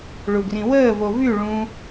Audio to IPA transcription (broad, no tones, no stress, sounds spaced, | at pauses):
ɭ u ɡ r ĩ w əː v o v y ɭ ũ